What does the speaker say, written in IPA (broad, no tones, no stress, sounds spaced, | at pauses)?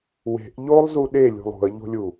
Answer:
w e̤ ʔ ʎ o lˠ z u ɗ e lʲ ṳ lˠ ṳ ə̯ ʎ o̤ lʲ u